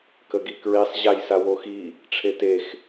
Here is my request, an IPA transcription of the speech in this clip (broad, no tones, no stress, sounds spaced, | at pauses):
k ə ɡ i k ɹ i sˤ ʑ a j s a w o x i | ʈ͡ʂʰ e t e x